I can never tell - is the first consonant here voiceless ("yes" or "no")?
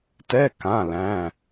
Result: yes